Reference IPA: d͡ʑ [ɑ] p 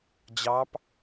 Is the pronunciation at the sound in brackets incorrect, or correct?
correct